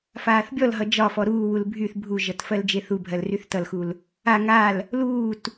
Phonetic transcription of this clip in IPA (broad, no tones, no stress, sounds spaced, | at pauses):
f aː θ bʲ ɔ l ɦ ʌ d͡ʒ ɒ f ɔ ɾ uː w u l bʱ y θ bʱ u ʒ ʌ t f ɜ l d͡ʒ e θ u bʱ ɜ l r y θ t ʌ l x u l | a ŋ a l | l uː t